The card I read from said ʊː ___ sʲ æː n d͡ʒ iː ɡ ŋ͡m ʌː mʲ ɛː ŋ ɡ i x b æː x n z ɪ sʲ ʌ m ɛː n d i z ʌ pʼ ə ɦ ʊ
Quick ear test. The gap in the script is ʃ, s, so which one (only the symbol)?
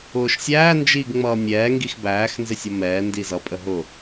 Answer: ʃ